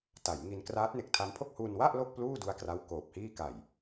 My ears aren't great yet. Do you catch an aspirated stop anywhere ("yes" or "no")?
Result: yes